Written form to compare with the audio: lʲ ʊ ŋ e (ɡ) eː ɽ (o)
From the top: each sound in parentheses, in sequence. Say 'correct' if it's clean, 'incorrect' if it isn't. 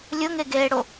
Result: correct, correct

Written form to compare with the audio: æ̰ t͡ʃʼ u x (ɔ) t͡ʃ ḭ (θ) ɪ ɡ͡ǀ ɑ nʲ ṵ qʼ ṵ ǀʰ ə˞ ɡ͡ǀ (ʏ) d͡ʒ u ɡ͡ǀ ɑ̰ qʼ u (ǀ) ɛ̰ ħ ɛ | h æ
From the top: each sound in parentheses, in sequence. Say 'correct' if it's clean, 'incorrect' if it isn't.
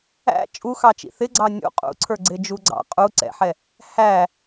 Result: incorrect: ɑ, correct, incorrect: ɪ, correct

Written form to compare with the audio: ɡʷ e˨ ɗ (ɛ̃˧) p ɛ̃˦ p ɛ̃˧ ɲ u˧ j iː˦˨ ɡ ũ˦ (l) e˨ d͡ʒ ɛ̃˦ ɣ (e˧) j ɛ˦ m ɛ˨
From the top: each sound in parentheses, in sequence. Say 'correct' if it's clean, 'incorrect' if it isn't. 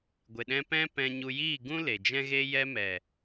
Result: correct, correct, incorrect: e˦

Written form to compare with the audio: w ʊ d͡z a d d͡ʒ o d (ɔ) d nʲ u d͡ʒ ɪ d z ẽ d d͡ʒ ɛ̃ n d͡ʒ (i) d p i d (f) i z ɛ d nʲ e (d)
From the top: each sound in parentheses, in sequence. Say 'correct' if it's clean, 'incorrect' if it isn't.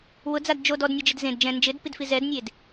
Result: correct, incorrect: ɪ, correct, correct

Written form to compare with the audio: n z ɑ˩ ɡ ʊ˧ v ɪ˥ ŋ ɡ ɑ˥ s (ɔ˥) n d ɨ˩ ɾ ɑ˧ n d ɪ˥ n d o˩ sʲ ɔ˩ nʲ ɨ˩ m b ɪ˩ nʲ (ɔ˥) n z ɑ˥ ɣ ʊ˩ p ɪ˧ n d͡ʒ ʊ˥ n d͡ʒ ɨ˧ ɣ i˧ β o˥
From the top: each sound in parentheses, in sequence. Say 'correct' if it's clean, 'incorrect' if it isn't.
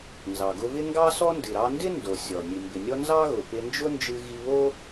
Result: correct, correct

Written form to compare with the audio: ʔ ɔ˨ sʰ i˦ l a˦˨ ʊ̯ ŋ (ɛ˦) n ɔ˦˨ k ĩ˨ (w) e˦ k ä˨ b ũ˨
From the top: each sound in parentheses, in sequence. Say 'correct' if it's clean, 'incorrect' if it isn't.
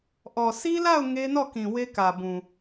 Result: incorrect: e˦, correct

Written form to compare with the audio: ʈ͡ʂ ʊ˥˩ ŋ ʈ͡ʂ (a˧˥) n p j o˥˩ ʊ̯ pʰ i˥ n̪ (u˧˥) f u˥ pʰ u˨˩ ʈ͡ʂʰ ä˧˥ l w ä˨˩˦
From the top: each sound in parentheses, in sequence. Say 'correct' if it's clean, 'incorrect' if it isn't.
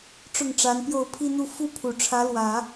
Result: correct, incorrect: u˥˩

